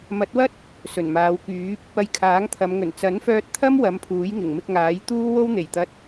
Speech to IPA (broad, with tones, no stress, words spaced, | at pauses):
mɐ˨˥t̚wɐ˥t̚ | sɵ˨˩nmaː˨˧wkyː˨˥p̚ | ɐ˧jkʰaː˨˥ŋt̪ʰɐ˨˧mŋɵ˨˩n t͡sɐ˨˥nfœː˧t̚t̪ʰɐ˥m wɐ˨˥mpʰuː˨˥jŋɪ˨˩ŋ mɪ˧k̚ŋaː˨˥jt̪uː˥ wo˥wn̪e˨˩jt̪ɐ˧t̚